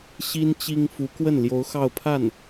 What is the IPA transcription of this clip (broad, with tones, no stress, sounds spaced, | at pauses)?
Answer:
ɕ i˥ n t͡ɕ i˥ ŋ f u˧˥ k w ə˥˩ n l j o˧˥ ʊ̯ x ɑ˥˧ ʊ̯ pʰ a˥˩ n